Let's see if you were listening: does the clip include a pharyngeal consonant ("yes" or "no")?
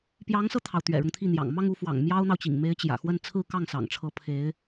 no